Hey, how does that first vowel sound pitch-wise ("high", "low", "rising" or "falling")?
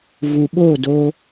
low